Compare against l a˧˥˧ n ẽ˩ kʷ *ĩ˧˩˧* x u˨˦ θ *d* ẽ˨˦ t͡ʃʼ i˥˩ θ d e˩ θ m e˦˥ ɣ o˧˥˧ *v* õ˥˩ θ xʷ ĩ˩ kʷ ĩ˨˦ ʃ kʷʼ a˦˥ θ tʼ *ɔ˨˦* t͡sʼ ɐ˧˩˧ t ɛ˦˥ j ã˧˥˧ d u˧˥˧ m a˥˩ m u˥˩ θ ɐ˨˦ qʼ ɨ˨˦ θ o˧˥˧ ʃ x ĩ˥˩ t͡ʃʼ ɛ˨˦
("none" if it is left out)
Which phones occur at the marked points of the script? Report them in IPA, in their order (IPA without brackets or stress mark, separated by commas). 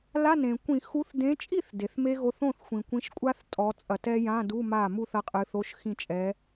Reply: ĩ˧˩˧, d, θ, ɔ˨˦